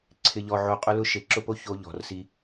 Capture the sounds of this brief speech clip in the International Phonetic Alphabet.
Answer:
ǀʰ ɪ˨ ʎ ɔ˨ ʕ o˨ qʼ ʊ˦ l ʊ˦ ʃ e˨ ǁ ʊ˦ p o˦ ç o˦ ʎ ɔ̤˨ r s i˦

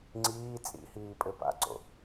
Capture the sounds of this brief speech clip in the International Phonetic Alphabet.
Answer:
ŋ͡ǀ iː t͡sʼ ḭ h iː pʼ ɘ p a̰ ǀ o̰

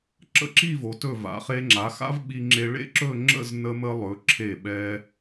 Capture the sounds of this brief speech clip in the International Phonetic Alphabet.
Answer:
ǁ ə̰˥˧ ǁ i˥˧ v o˩˧ t ɵ˧˩ v a̰˩˧ χ e˧ ŋ͡ǁ a˩˧ x a̰˥ v ɓ i˧ ŋ͡ǁ e˧ ɭ ḛ˥ ǁ ɵ˥˧ ŋ͡ǁ ə̰˥˧ z n ə˧ m ə˧ lˠ ɵ˩˧ ǁʰ e˧˩ ɓ ɛ˧

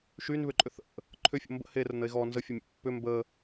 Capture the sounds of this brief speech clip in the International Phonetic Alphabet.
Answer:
ʃ y n β ʏ ǃʼ ʏ θ ə̰ | ǃʰ ʏ fʲ o̰ m b ə̰ h e r ə n ə e̯ ɣ ɔ n z ə fʲ ə mʲ ə̰ pː ʏ m b ə

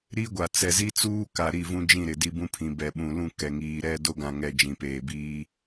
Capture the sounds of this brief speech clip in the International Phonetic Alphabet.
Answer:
ɾ i˦ ɡʷ a˨ t͡s ɛ˨ z i˦ t͡s uː˦ k a˨ ɾ i˦˨ v ũ˦ d͡ʒ ĩ˦˨ ɾ ɪ˨ d i˦ b ũ˦ pʰ ĩ˨ b ɛ˨ ɓ ũ˨ l ũ˦˨ k ɛ˨ ŋ iː˨ ɾ ɛ˦˨ d o˦ ɡ ã˨ ŋ ɛ˨ d͡ʒ ĩ˨ p eː˨ b iː˦

